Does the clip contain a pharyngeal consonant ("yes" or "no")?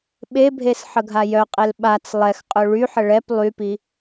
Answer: yes